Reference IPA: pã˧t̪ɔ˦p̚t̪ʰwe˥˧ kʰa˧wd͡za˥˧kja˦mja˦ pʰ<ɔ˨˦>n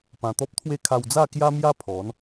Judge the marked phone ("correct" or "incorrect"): correct